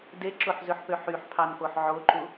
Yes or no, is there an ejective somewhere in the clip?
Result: no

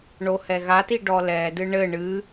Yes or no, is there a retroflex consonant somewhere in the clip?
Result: yes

